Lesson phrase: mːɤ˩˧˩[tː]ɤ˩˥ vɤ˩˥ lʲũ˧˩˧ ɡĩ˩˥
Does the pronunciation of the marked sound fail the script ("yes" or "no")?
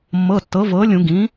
no